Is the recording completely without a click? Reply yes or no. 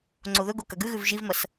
no